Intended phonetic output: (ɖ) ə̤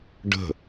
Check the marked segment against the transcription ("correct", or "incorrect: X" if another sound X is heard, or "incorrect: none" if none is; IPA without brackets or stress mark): correct